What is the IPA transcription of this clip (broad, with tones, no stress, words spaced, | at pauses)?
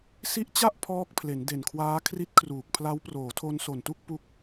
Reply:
si˦˥ʔt͡ɕa˥˩ʔ pʰɔː˦˥k̚pʰle˩˦n de˨˩nkʰwaː˦˥ kʰri˦˥t̚kʰruː˨˩k̚pʰla˦˥w proː˩˦tʰo˧nso˨˩ntu˥˩k̚ pu˥˩k̚